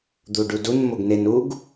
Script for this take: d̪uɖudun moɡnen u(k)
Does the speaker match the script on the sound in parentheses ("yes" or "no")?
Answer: no